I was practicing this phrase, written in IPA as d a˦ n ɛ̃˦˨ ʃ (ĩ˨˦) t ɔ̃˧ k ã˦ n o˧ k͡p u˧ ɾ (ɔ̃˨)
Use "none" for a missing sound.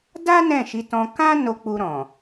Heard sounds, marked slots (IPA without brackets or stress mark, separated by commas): i˨˦, ɔ̃˨